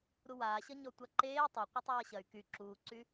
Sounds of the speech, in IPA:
ɾ u w aː ɕ ʌ ɲ ɔ tʷ a ǃ eː tˤ ɐ qʷ ʌ tˤ aː ɕ ɐ y̯ k y ǁ uː ǀ y

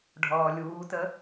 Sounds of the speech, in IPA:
ɖʱ ɔː lʲ uː t ə

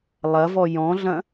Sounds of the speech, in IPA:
lˠ ɐ v ɔ j ɔ̃ ɮ ɐ̃

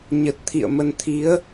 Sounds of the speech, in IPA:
ɲ ə˨˩ t̚ t̪ʰ ḭ˧˨ ə̯ m ə˨˦ n t̪ʰ i˨˦ ə̯

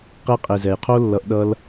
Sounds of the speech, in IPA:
q e˧ qʼ e˨ z ɛ˨ j qʰ o˦ lː ʌ˧ ʔ ɗ ʌ˧ l

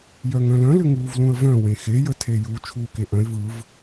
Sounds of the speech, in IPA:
j œ ŋ œ̃ l œ̃ l ʏ ŋ uː v l ũ ə̯ v œ̃ w ẽ x e j ə tʰ e j u t͡ʃʰ uː k e ʔ œ̃ ɪ̯ v ɯ v

